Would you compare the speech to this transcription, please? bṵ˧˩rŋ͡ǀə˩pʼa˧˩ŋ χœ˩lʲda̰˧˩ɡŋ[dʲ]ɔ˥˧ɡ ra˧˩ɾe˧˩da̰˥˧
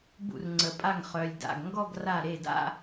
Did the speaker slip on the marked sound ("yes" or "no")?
yes